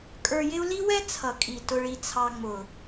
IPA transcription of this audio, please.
kʼ ə˞˧ j ɪ˦ u̯ l i˦ w ɛ˦ t͡sʰ ʌ˨ kʼ i˨ t ʊ˧ ɭ i˧ t͡sʰ ɑ˧ ŋ͡m ʊ˨

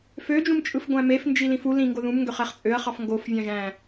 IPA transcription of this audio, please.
f ø d͡ʒ ũ m t͡ʃʼ ɯ f ɡʷ æ̃ m e f n d͡ʒ i l ĩ f u l ĩ ŋ ɡ o ð ũ m ŋ ɡ ø χ æ χ t͡sʼ ø ɐ̯ χ ɑ f ŋ ɡ o f vʲ ɑ̃ ʒ æ̃

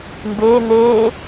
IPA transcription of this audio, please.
m b eː n̪ eː

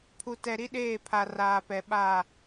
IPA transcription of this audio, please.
pʰ u˨ t ɛ˨ ɾ i˦ ɗ eː˦˨ pʰ a˨ r aː˨ p ɛ˨ ɓ a˦˨

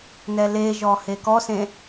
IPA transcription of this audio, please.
n ɛ l e ʒ ɔ h e k ɔ s ẽ

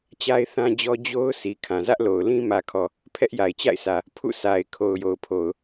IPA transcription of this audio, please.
t͡ɕ a˦ ɪ̯ θ ã˦ d͡ʑ ɔ˦ d͡ʑ o˦ ʊ̯ s i˨ kʰ ã˨ z ä˦ ʔ l o˨ ʊ̯ l ĩ˦ m ä˨ kʰ ɔ˨ | pʰ ɛ˦ ʔ j a˨ ɪ̯ t͡ɕ a̰˦˨ ɪ̯ sʰ ä˨ | pʰ ṵ˦˨ sʰ a˨ ɪ̯ kʰ o˨ ʊ̯ j o˨ ʊ̯ pʰ o˨ ʊ̯

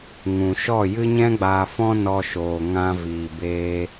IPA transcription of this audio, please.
ŋ ũ˨ ʃ ɔ˦˨ j ɨ˦ ɲ ɛ̃˦ ɡ͡b aː˧ f ɔ̃˦ n ɔ˧ ʃ oː˨ ŋ ã˧ v iː˨ b eː˧

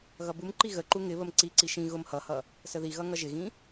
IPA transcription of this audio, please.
ɣ ʌ b u m ǃ i ɣ ə ǃ u ŋ ɪ β ə m ǀ i ǀ i ʃ ĩ ɣ ʊ m h ʌ h ʌ | s ə ð i ɣ ʌ ŋ ʌ ʒ ɪ ɣ ĩ

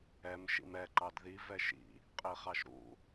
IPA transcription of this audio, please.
ɛ m ʃ ḭ m ɛ ǃ ɑ d ð i v ɛ ʃ ḭ | qʼ i χ ɑ ʃ ɾ ṵ

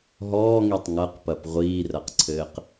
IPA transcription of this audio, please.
ɦ ɔː ŋ i tˤ ŋ ɐ q p ɐ p ʁʷ iː r ɐ q ǀʰ ɘː q

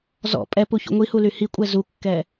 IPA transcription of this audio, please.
z ɔ̰ pʼ ɛ p u ç ṵ ŋʷ i h u l y h i kʷʼ ɛ z u kː ɛ

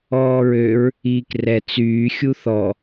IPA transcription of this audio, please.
ɔː ɹ ø ɹ | iː k r ɛ t͡s yː xʲ u θ ɔ

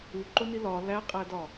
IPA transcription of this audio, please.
u ǃ o n i l ɒ l æ qʼ æ d ɒ

